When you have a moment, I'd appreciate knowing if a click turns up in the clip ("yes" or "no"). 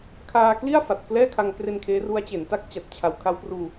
no